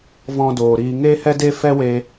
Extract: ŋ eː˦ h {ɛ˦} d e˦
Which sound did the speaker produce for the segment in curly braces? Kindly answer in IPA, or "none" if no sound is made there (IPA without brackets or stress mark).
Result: ɛ˦